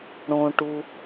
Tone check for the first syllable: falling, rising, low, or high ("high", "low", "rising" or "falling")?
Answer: low